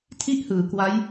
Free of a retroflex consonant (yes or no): yes